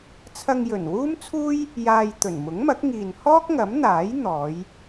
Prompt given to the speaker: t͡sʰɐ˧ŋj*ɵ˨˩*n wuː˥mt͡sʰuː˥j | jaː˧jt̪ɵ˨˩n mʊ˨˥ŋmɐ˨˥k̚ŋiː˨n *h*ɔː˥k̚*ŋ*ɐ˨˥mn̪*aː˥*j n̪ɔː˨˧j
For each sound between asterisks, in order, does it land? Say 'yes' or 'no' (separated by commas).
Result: yes, yes, yes, no